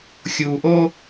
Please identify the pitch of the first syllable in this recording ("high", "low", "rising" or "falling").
low